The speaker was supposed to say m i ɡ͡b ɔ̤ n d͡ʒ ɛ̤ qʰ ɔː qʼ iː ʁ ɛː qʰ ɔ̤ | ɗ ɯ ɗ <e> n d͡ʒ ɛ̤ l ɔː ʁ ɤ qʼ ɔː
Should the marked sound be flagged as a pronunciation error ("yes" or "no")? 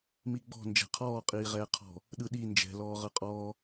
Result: yes